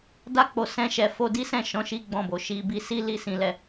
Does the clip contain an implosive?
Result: no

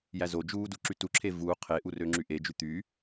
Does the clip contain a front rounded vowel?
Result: yes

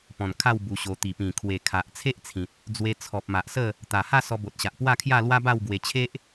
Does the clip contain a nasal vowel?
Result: yes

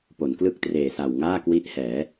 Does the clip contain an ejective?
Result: no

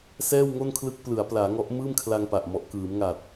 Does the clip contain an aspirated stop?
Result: yes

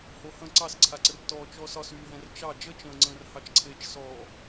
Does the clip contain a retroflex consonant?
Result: no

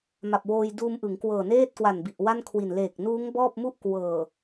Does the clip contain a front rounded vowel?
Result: no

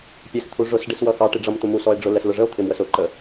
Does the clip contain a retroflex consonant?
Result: yes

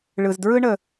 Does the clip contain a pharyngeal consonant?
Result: no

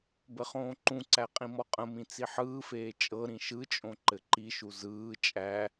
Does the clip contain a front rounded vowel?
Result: no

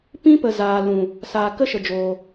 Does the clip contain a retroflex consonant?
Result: no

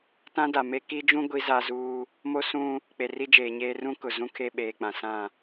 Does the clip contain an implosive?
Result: yes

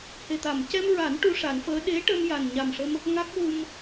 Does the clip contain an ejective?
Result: no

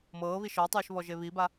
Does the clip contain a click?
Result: no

